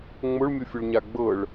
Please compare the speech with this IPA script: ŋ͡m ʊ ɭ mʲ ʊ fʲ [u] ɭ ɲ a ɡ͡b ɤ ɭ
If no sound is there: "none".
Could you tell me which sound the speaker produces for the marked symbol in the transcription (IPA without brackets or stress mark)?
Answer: ʊ